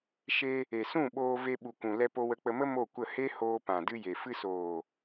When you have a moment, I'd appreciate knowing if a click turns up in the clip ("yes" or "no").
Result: no